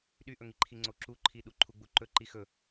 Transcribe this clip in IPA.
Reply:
ɗ y ʔ ɵ ŋ i ǃʰ i ŋ͡ǀ o ǁ u ǃʰ i ɗ u ǃʰ u ɡ͡b u ǃ ɵ ǃ i x ɵ

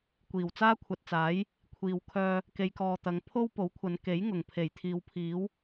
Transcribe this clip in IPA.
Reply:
kʷ iː˨˩ w t͡s aː˥ kʷʰ ɐ˨ t̚ t͡s aː˨˥ j | kʷʰ iː˧ w kʰ œː˥ | k e˨˧ j k ɔː˨ t̪ ɐ˨˧ ŋ pʰ o˥ w p o˨˥ w kʷʰ ɐ˨˧ n k e˨˥ j ŋ ʊ˨˩ ŋ pʰ e˨˩ j t̪ʰ iː˨ w pʰ iː˨˥ w

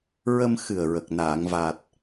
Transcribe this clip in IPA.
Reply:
ɹ ə˧ m x ɨ˨˩ ə̯ ɹ ə˨˩ k̚ n aː˨˩˨ ŋ v a˨˩ t̚

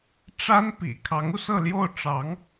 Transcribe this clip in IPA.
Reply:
ʈ͡ʂ a˥ n p ḭ˨˩ kʰ ɑ˧˥ ŋ u˧ s ɤ˥˧ l j o˥˩ ʊ̯ ʈ͡ʂ ɑ˧˥ ŋ

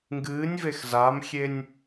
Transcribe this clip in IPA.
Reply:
ŋ ɡ ɨː nʲ v e x z a m xʲ e nʲ

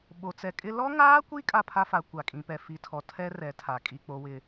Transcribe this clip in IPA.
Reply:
ɓ o˨ t͡s ɛ˨ kʼ ɪ˦ l ɔ˦ ŋ aː˦ kʷ i˦ kʼ a˦ pʰ a˦ f a˨˦ kʷ a˨ kʼ ĩ˨ p ɛ˨ f i˨ tʰ ɔ˨ tʰ ɛ˦ r ɛ˨˦ tʰ a˨ kʼ i˦˨ k͡p o˦ w ɪ˦

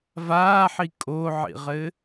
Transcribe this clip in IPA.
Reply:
v aː ħ i kʼ o ʕ ḭ ʁ ɘ

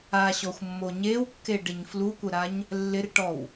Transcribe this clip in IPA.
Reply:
a ɕ ɔ xʷ mː o ɲ e w kː e ɖ ɪ ɲ f l u kʷ ə ɾ a ɲ | lː ɪ r ʈ ɔ w

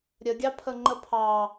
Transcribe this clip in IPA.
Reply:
ɾʲ ə ɡʲ ɑ pʰ ə ŋ͡ǃ ə pʰ ɑ

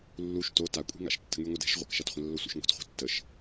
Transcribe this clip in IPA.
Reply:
lː u ʃ t o t a kʷʼ i̤ ŋ a̰ ʃ tː ə̤ ŋ y ŋʷ ə d ɛ̤ ʃ ʁʷ ə̰ k ʃ a t χʷ ə̃ lː o sʷ ə̰ ʃ ŋ o̤ t χʷ ɛ̤ tː ə ʃ

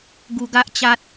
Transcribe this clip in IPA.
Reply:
ɡ u˧ ɡ a˦ ʔ t͡ɕ a˦ t̚

